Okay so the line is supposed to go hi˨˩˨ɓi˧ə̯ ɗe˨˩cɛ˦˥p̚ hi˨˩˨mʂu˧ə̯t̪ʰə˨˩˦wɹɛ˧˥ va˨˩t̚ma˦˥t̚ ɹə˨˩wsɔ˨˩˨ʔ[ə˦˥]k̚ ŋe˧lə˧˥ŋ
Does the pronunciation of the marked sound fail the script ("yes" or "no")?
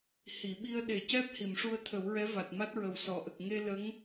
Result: yes